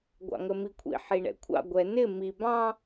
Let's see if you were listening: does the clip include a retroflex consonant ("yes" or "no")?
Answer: yes